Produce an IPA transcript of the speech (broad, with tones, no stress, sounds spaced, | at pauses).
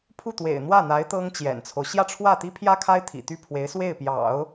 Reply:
pʰ u˥˩ t̪ w ḛ˨˩ ɪ̯ n̪ w ä˥˩ n̪ a˧˥ ɪ̯ t̪ ɤ˥ ŋ t͡ɕ j ɛ̰˨˩ n t͡sʰ o˦ ʊ̯ ɕ j ä˥˧ ʈ͡ʂʰ w ä˥˩ t̪ i˥ pʰ j ä˥ kʰ a˥ ɪ̯ t̪ʰ ḭ˨˩ t̪ y˥˩ pʰ w e˧˥ ɪ̯ s w e˥˩ ɪ̯ p j ɑ̰˨˩˦ ʊ̯